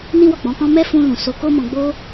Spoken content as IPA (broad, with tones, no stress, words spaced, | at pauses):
nĩ˦wɔ˦˨k͡pɔ̃˨˦kɔ̃˦ mɛ˦fũ˧lũ˨ so˧ko˦mɔ̃˧ ɡ͡bo˦